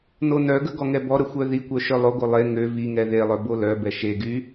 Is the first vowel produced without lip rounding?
no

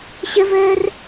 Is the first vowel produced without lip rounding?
yes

